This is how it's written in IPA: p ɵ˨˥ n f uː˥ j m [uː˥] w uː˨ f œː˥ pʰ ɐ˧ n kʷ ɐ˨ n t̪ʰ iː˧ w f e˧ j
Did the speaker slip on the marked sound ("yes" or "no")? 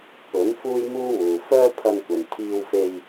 no